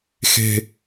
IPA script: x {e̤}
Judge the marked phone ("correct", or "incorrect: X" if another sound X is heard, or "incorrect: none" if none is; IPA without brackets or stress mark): correct